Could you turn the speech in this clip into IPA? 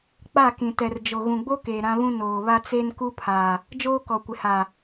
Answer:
k͡pa˦˨kĩ˨tɛ˨rd͡ʒo˨ ɣũ˨ɡ͡bo˦keː˨ ɾã˦βũ˦ noː˨βa˦ t͡se˦nku˦pʰa˨ | d͡ʒoː˦kɔ˨kʷɪ˨ha˨

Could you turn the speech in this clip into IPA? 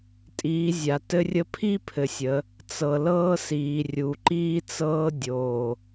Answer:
tʼiː˨˦zʲa˨tɘ˦rʲə˦ pʰi˦ pʰɘ˨sʲə˨˦ | t͡sɤ˨lɤː˦siː˨ rʲu˨ǃiː˦t͡sɤː˦ dʲoː˨

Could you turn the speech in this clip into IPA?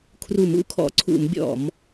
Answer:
kʰru˧˩˧mṵ˧˩˧kʰɔ̰˧˩˧ ǀʰṵ˧˩˧mbʲɔ̰˧˩˧m

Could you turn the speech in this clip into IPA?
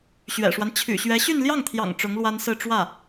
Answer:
ɕɥɛ̰˨˩ʂwa˦n t͡ɕʰy̰˨˩ɕɥɛ˧˥ ɕy˥˧n ljɑ˥˩ŋt̪ʰjɑ̰˨˩ŋ ʈ͡ʂʊ˧˥ŋlwa˥nsɹ̩˥˧ ʈ͡ʂwä˥˩

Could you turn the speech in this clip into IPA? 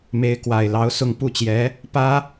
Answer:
me˧˥ɪ̯kwa˨˩ɪ̯lɑ˧˥ʊ̯sʊ˥˧ŋ pu˥˩t͡ɕjɛ˧˥ | pä˥

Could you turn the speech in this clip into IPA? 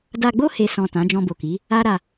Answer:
da˧ɡ͡bo˦ he˧sɔ̃˨ tã˨˦d͡ʒɔ̃˧bo˨ki˨˦ | a˦ɾa˧

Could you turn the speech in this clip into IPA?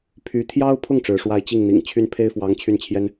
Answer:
pʰy˥ t̪ʰjɑ˥ʊ̯pʰʊ˥˩ŋ ʈ͡ʂɻ̩˧˥ʂwa˥ɪ̯ t͡ɕi˥˩ŋn̪ḭ˨˩ŋ t͡ɕʰy˥npʰe˥ɪ̯fwɑ˧˥ŋ t͡ɕʰy˥˩nt͡ɕʰjɛ˥n

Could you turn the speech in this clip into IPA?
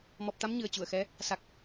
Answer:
mɔ˨˩p̚t̪a˧m ɲɨ˨˩ə̯t͡ɕu˧˩ə̯xɛ˨˦ | sa˨˩k̚

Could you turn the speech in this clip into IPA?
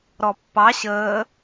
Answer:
ɾɔpːɑ ɕəː

